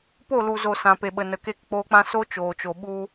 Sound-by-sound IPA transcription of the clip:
p o˦˨ l u˨ z o˨ s ã˨ p e˨ ɓ ə˨ n ə˨ k e˧ k k͡p oː˧ k͡p ã˦ s o˦ t͡ʃ oː˨ t͡ʃ o˨ ɓ u˧

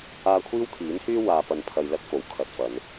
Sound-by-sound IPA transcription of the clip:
aː˧ kʷʰ iː˥ w kʰ iː˨˥ n h yː˥ w aː˨ p ɐ˨ n pʰ ɐ˨ j l ɐ˧ t̚ f o˨ w kʰ ɐ˧ t̚ f ɐ˨˧ n

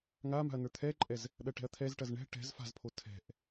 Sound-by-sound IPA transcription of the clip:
ŋ a m a̤ ɐ̯ n ə˞ t̪ʰ ɛ ǃʼ ɛ z | ɗ ɐ ʈ ɛ̤ ɐ̯ t̪ʰ ɛ z ʈ ɐ z ɳ ɛ̤ ʈ ɛ̤ z f a̤ z pʰ o tʰ ɛ̤ ʔ

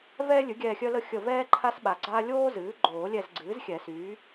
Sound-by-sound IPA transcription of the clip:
v ɛː˥ lʲ ɨ˩˥ ɡʲ ɛː˦˨ xʲ œ˥ l ə˥ xʲ ə˦˨ v ɛː˥ ǃʰ a˥ s ɓ a˨˩ ɡ͡ǀ aː˥ lʲ oː˥ z ɨː˩˥ ɡ͡ǃ oː˨˩˦ lʲ ɛ˦˨ z ɡ͡ǀ ɨː˩˥ z xʲ ɛ˨˩˦ s yː˩˥

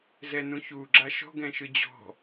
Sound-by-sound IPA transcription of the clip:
z ɛ n ũ ç u ɡ͡ǁ a ʃ ɔ̤ ɡ ɛ̃ ʃ ɯ d͡ʑ ɔ̤

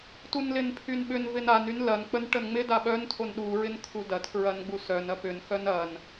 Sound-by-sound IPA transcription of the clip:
t u n l ɪ n pʰ y n ɓ ʏ n v ɪ n a n y n l ɐ n k͡p ə n ʈ ə n ŋ͡m ɪ d a ɓ œ n tʰ o n ɗ u ɹ ɪ n kʰ u d ɐ tʰ ɹ ɐ n ɡ͡b u s œ n ɐ p ʏ n x œ n ɐ n

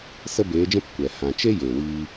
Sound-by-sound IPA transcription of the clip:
s ə˦ b eː˨˦ d͡ʒ ɛ̃˦ p kʷ ɛ˨ h ã˨ t͡ʃ e˦ j eː˨ w iː˧

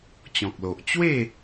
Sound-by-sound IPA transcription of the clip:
t͡ɕ ɔ̃˨ k̚ l o˨ ʔ t͡ɕ w e˥˧

